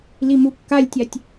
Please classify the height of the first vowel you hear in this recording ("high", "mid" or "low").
high